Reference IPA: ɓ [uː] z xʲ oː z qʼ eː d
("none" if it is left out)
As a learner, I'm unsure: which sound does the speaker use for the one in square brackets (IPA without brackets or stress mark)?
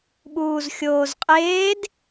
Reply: uː